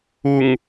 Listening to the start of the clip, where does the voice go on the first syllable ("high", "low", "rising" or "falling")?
low